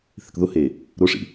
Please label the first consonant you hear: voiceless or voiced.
voiceless